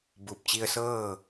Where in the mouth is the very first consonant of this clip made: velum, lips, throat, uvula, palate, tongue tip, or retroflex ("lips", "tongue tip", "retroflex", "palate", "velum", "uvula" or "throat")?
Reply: lips